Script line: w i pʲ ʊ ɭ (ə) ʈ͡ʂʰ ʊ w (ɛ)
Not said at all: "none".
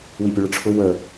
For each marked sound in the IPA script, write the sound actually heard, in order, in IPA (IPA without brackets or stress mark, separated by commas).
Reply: ə, ə